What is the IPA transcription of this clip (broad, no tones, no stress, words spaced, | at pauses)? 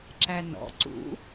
ǁænɔ̰ ǀṵ